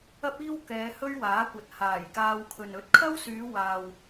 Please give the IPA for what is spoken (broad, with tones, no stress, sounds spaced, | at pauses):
ɐ˥ p̚ iː˥ w k ɛː˨˧ h ɵ˥ ɥ w aː˨˥ kʷ ɐ˨ t̚ h aː˨˩ j k aː˧ w kʰ ɵ˨ n ɵ˨˥ t̚ kʰ ɐ˥ w s yː˨˧ w aː˨ w